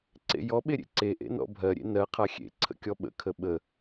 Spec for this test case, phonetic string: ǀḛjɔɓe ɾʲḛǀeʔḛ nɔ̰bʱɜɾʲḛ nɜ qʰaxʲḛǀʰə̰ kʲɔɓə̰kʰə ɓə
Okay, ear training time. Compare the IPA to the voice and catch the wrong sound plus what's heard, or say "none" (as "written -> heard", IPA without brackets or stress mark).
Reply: none